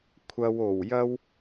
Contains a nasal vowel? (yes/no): no